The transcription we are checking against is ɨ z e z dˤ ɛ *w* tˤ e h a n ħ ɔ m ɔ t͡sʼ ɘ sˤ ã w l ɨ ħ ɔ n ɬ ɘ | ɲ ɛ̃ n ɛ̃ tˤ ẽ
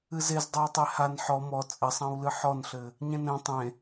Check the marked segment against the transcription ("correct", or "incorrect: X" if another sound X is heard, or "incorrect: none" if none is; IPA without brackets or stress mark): correct